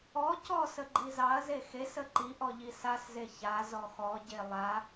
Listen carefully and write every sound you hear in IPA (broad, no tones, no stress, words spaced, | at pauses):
ɔ cɔsə ɡ͡ǃizɑɐ̯ze xesə ǃiʔɔ ʎisasze ça zɔxɔɟe lˠa